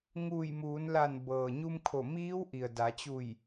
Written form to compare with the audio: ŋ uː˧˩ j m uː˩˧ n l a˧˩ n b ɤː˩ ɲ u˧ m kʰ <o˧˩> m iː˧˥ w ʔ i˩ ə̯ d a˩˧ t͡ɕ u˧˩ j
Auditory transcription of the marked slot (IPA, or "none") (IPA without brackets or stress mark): o˧˩